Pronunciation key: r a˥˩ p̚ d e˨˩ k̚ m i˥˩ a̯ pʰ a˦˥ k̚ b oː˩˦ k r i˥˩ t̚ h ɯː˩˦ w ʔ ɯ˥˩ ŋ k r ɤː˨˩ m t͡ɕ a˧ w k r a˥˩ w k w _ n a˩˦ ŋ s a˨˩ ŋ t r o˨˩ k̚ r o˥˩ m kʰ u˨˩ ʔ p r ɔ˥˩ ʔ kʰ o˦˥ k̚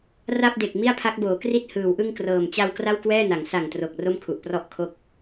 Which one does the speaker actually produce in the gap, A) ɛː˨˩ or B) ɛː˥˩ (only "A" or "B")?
B